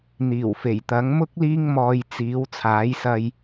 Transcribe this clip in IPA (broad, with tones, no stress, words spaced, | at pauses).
n̪iː˨˩w fe˨˩jt̪ɐ˨˥ŋmʊ˥k̚ liː˥ŋmɔː˧jt͡siː˨˥w t͡sʰaː˨˥jsɐ˧j